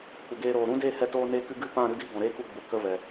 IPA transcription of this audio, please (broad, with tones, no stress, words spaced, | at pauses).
kʷə˨ɡeː˧ɾoː˨ ɾũ˦de˦˨hɛ˧ toː˧neː˧kɨ˧ ɡɨ˦pã˦˨ ɾɨ˦di˦ ɡɔ̃˨ɾeː˦ku˦˨ɡ͡bu˨ kə˦ vɛ˨